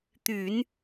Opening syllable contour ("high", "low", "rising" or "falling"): low